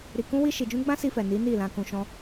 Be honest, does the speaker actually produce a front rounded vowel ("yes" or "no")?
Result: no